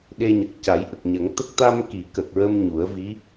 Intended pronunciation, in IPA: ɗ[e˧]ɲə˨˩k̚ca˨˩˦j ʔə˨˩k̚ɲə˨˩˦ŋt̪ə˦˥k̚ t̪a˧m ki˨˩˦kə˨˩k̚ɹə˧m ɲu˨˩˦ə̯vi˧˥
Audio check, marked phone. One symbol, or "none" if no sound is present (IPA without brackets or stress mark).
e˧